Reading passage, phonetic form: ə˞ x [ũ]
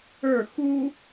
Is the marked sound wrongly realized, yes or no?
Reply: yes